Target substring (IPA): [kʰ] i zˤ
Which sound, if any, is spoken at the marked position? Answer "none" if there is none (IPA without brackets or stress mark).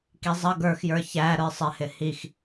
k